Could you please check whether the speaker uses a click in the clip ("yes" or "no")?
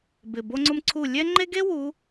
yes